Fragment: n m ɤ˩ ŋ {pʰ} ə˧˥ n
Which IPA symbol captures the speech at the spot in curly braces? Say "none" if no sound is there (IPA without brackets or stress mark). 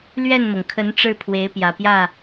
kʰ